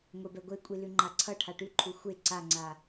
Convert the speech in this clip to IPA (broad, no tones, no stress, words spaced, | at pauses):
ŋʷebɛɡʷekʷʼi lʉŋ͡ǃaǀʰʌ ʈʰaʈʉǃʰu xʷe ǀaŋ͡ǀa